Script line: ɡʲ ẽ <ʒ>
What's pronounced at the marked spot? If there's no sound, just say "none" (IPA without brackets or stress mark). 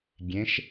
ʃ